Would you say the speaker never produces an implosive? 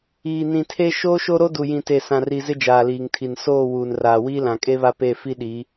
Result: no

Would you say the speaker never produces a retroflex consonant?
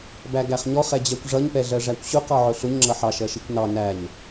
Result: no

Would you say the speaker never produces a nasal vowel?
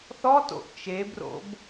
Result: yes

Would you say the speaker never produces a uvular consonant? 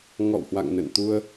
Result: yes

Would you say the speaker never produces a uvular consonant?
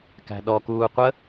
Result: no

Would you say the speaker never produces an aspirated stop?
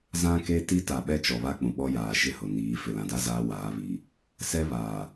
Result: yes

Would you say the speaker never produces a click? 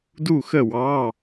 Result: yes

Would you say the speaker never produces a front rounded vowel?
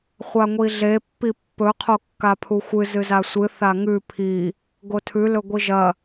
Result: yes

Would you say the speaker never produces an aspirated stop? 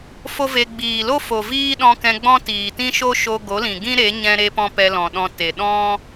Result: yes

